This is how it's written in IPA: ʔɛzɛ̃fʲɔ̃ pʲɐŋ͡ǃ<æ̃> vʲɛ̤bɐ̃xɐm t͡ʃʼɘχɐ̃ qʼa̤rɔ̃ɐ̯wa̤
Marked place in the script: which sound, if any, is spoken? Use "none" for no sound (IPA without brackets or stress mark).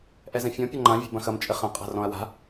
ã